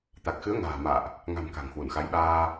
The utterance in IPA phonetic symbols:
t̪ a˨˩ k̚ x ɨ˨˦ ə̯ ŋ a̤ː˨˩ m a̰ː˧˨ ʔ | ŋ a̤˨˩ m k a̤˨˩ ŋ h w u˧˩ n x a˨˦ j ɓ aː˧

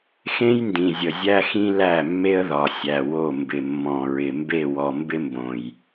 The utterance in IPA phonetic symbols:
x ẽ˦ j n d ĩ˨ zʲ ə˨ zʲ æ˦ x ĩ˦ l æ˦˨ mː e˦ ə̯ ð ɒ˨ sʲ æ˨ w o˦˨ m b ɪ˨ mː ɔ̃˨ ɹ ɪ˨ m b e˦˨ w ɔ˨ m b ɪ˦ m b õ˨ j

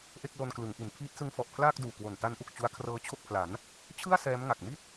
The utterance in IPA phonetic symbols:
ʔ e˥˩ k̚ l o˧ n k l ɯ˩˦ ŋ ʔ i˩˦ n pʰ iː˦˥ t̚ s ɯ˦˥ ŋ f ɔ˨˩ ʔ pʰ l aː˥˩ k̚ d uː˨˩ k w o˨˩ n t a˦˥ n ʔ u˨˩ k̚ t͡ɕ u˦˥ a̯ kʰ r ɤː˧ t͡ɕʰ o˥˩ k̚ pʰ l a˩˦ n | t͡ɕʰ ɯ˥˩ a̯ s ɛː˦˥ m ŋ a˨˩ k̚ m i˥˩ t̚

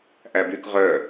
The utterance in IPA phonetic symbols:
ʔ æ b y k ʁ œ

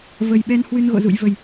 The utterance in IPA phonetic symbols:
v ə˨˩ j ɓ ɛ˧ n h w ɨ˧ n ɣ o̰˧˨ z ṵ˧˨ j v ə˨˩ j

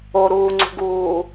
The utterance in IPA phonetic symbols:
o ɾ uː ŋ͡ǀ ṳ ɡ uː

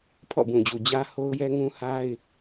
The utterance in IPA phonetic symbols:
pʰ ɔ̰˦˨ b ũ˨ d͡ʑ u˨ d͡ʑ ä˦ h o˦ ʊ̯ j ɛ˦ ŋ ũ˦ h a˦ ɪ̯

